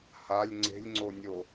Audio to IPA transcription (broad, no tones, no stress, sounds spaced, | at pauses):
h a lʲ ŋ͡ǀ e̤ lʲ ŋ͡ǀ o nʲ o